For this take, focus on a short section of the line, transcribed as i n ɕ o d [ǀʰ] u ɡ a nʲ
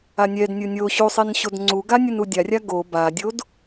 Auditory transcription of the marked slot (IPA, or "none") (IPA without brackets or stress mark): ŋ͡ǀ